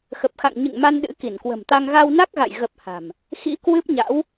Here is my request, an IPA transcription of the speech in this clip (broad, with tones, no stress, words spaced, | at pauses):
xə˨˩p̚xa̰˧˨ŋ ɲɨ̰˧˨ŋma˧n ɗɨ̰˧˥ ki˧˩nkwə̤˨˩mt̪a˧ŋ ɣa˧wna˦˥k̚ɣa̰˧˨j ɣə˨˩p̚ ha̤˨˩m | xḭ˧˥kwɨ˦˥p̚ɲa̰˧˥w